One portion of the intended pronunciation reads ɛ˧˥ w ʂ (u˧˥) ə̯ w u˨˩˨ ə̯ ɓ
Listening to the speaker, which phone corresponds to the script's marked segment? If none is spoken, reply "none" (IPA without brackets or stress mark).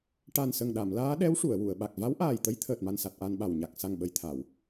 u˨˩˨